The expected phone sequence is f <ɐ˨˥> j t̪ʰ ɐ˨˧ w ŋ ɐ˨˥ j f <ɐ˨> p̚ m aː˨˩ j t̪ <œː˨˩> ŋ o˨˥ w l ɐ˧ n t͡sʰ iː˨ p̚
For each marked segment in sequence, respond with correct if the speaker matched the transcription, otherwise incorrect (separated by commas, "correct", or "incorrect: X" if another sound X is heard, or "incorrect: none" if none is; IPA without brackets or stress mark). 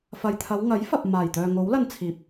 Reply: incorrect: ɐ˨, correct, incorrect: œː˨